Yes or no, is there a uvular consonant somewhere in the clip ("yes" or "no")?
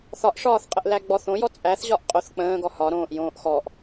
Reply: yes